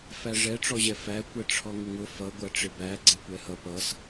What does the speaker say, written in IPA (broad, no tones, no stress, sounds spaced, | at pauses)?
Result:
f æ ʐ ɛ ʈ͡ʂ ɔ ʑ ɛ f æ kʷ ɛ ʈ͡ʂʰ ɔ ŋ ʊ ŋ ʊ f ʌ ɡʷ æ ʈ͡ʂ ɪ b æ ɡ͡ǀ ɛ kʷ ɛ h ʌ p ʌ s